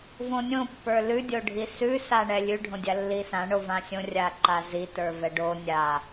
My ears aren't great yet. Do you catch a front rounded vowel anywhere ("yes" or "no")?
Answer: no